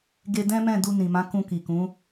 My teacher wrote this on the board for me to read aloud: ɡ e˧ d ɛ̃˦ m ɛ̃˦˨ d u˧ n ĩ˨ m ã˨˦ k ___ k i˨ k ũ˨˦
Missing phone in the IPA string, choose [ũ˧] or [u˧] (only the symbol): ũ˧